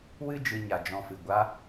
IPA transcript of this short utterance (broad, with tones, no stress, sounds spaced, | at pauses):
w ɨ˦ d͡ʒ ɨ˧ ɲ a˨ d͡ʒ ɔ̃˧ f ɨ˨ ɡʷ a˧